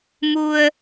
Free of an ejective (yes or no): yes